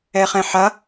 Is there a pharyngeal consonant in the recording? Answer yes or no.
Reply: yes